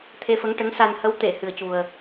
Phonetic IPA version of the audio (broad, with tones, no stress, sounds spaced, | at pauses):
t̪ʰ e˧ f ə˧˥ ŋ ʈ ə˧˥ ŋ s a˧ n h ə˧˥ w t̪ e˨˩˨ h ɨ˨˩ ə̯ c u˨˩ ə̯